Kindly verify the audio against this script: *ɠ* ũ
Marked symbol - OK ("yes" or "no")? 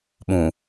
no